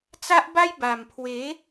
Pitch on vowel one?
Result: high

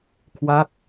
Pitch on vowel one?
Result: falling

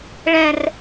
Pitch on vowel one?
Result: high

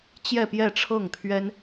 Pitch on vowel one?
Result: falling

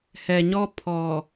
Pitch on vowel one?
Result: low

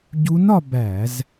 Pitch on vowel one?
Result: rising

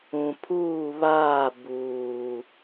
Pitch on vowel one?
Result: low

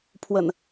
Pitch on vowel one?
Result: low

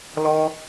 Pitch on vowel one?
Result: high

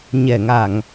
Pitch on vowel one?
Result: low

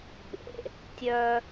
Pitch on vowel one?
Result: low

